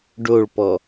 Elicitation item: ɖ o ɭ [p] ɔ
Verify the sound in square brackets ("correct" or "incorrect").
correct